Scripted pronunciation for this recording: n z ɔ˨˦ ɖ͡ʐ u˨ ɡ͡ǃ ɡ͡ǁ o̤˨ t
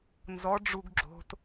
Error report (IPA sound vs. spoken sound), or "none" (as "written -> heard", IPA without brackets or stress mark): ɡ͡ǃ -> ɡ